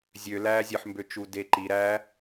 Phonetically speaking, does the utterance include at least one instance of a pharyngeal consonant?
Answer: yes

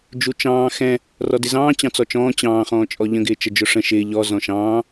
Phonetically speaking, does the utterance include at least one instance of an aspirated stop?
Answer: no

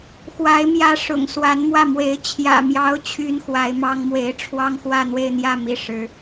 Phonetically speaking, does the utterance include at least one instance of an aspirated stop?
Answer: yes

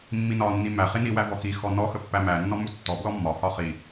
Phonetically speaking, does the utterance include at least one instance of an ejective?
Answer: no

